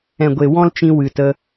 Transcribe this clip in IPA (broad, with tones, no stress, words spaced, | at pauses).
ɛ̃˨ɡʷe˨ wɔ̃˦lt͡ʃĩ˧ wɨ˨ tə˧